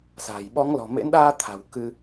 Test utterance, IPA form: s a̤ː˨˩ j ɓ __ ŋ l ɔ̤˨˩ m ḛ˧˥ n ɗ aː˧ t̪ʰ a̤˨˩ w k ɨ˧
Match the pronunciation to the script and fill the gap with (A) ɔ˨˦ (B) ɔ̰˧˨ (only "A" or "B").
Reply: A